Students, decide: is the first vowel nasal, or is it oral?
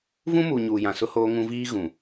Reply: nasal